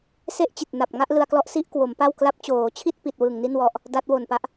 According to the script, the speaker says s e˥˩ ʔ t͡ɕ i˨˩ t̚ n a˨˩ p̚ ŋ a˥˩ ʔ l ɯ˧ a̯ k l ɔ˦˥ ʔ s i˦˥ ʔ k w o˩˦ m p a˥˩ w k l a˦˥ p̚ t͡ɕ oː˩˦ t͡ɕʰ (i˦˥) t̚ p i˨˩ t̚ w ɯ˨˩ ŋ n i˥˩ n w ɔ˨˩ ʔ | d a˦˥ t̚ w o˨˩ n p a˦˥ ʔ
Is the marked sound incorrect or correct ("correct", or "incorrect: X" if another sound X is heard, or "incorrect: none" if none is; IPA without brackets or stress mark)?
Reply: incorrect: i˥˩